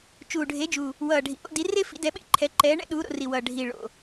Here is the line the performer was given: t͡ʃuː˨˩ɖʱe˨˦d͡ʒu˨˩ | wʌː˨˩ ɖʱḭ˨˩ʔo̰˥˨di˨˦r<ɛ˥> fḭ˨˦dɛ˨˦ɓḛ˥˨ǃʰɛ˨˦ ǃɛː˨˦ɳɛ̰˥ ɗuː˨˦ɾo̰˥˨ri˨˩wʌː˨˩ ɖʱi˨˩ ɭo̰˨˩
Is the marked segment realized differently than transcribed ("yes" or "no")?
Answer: yes